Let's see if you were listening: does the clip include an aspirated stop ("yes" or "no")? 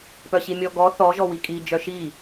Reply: no